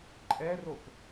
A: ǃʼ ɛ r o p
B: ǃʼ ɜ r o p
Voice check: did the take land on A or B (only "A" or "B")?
A